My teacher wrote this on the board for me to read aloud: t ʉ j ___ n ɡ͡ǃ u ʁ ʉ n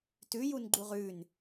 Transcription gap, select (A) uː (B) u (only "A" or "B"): B